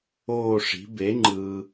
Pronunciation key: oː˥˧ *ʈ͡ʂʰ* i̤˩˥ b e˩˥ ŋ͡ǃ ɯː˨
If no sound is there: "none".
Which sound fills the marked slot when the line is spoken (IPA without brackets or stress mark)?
ʂ